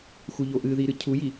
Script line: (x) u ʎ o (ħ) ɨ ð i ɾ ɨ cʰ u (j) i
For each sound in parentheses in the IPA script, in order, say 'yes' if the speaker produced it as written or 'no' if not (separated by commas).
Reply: yes, no, yes